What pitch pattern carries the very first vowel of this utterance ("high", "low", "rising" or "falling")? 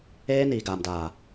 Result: high